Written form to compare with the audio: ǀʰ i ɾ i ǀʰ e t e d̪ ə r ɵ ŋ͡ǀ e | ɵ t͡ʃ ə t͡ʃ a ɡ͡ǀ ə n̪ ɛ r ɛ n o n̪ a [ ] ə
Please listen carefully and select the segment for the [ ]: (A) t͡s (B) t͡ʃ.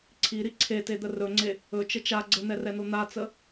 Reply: A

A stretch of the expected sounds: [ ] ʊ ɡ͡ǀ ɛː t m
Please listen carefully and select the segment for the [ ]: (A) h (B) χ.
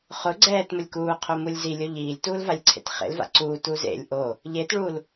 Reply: B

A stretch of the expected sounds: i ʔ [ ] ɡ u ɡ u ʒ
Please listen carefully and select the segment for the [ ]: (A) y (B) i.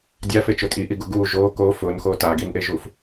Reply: B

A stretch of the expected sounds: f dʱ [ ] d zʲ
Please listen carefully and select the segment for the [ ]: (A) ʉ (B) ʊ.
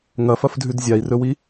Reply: A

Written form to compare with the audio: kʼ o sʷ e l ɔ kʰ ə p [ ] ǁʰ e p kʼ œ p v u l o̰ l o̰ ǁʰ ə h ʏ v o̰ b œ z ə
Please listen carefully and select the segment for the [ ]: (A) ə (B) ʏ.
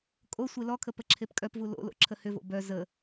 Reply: A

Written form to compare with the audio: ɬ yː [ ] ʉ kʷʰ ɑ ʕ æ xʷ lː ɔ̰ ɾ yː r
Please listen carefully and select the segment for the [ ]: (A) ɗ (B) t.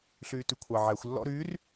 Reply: B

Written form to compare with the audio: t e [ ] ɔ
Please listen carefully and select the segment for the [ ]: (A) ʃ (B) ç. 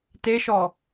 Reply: A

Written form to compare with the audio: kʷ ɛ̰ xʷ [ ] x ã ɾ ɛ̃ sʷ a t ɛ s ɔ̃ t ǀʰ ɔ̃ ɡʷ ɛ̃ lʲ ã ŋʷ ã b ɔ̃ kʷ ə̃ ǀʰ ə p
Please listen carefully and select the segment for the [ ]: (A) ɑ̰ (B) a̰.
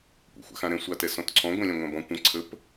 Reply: B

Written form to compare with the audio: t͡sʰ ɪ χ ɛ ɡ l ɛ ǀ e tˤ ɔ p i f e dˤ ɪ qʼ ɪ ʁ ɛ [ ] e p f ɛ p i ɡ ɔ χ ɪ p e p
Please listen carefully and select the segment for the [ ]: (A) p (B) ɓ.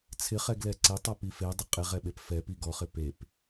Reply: B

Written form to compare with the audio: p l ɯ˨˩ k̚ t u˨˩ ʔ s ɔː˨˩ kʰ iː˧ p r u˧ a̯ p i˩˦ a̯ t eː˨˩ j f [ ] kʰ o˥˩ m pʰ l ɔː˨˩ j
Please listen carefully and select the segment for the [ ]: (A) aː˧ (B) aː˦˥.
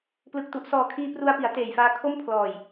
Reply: A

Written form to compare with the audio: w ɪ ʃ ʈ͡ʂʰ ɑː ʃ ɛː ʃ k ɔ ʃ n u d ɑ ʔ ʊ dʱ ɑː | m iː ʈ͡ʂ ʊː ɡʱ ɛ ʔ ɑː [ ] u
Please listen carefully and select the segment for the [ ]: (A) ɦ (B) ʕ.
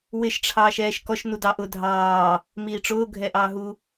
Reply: A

